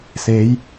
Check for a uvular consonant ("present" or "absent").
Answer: absent